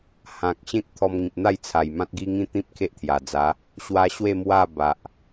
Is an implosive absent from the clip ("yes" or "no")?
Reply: yes